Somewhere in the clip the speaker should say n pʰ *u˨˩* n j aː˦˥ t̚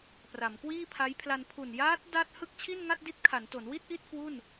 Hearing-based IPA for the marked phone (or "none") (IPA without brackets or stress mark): u˨˩